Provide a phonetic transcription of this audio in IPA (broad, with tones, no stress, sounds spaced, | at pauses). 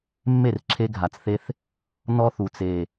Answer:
mː e˦˨ r ǁʰ e˧ ɡʱ a˨ t͡s θ e˧ θ | n ɔ˦ θ u˨ t͡s e˨